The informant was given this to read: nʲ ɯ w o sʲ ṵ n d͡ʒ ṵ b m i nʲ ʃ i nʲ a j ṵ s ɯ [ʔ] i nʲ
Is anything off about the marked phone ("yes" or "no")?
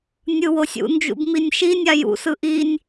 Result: no